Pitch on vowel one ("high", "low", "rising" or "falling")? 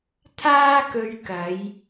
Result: high